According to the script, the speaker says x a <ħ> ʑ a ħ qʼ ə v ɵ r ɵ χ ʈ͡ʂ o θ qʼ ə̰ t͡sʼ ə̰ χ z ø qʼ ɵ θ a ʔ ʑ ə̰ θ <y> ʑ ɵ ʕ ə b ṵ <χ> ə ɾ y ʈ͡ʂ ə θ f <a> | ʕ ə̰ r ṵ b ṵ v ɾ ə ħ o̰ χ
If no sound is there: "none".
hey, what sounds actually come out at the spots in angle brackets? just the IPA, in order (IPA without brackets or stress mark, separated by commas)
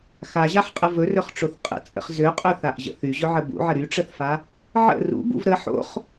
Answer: none, y, ʕ, a